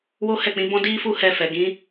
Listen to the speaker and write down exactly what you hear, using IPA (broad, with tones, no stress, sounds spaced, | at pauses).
w o˦ h ɛ˦˨ k͡p ĩ˨˦ b ɔ̃˦ d i˦ f u˦˨ h ɛ˧ f ɛ˨ ɡ ĩ˨˦